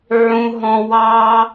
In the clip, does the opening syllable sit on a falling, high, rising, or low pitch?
high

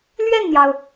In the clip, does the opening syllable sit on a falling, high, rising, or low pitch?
falling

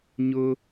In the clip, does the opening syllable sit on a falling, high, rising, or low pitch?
high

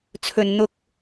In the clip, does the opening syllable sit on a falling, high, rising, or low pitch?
low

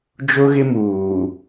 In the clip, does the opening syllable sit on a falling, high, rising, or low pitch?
high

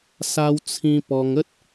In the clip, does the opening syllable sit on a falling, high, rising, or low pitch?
high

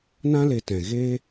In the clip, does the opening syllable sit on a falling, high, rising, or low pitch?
high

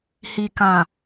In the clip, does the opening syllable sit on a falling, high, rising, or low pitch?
low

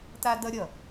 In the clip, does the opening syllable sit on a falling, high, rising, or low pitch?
high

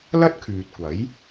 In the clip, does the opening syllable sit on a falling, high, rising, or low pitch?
high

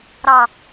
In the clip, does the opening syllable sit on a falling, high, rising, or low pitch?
falling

